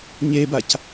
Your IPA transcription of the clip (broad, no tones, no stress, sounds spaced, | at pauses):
ɲ e b a c